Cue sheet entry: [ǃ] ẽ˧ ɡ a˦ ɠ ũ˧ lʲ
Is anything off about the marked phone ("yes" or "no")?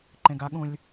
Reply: no